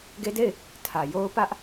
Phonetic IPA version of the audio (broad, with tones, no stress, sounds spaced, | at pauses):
ɡ e˦ d e˦˨ ɪ̯ | tʰ ä˨ j o˦ ʊ̯ p ä˦ ʔ